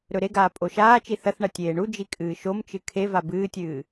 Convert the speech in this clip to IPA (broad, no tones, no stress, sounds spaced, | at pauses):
ɾ ɵ ɾ e ɡ aː pʼ o ʃ aː t͡ʃ i θ ɐ θ ɳ ɐ tʲ eː ɳ u d͡ʒ i kʼ ɨː ʃ o m t͡ʃ ɨ kʰ e v a b ɨː tʲ ɨː